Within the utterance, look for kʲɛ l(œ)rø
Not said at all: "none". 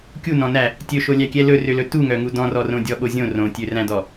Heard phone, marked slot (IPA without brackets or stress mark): ɵ